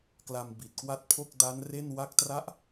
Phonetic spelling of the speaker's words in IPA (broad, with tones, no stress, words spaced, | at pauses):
kla˧mbi˨˩t̚kwa˦˥t̚pʰo˥˩k̚ da˦˥nre˥˩nwa˥˩k̚tra˥˩ʔ